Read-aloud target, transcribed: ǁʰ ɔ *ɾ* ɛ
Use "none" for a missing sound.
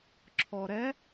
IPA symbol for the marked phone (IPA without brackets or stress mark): ɾ